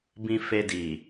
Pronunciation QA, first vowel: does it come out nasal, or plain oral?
nasal